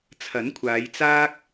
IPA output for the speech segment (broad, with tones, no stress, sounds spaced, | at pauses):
t͡sʰ ɐ˨˥ n kʷʰ aː˨˧ j t͡s aː˥ k̚